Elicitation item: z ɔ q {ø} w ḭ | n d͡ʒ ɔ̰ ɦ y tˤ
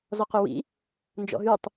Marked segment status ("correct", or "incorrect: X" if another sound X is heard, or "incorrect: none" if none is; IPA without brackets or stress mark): correct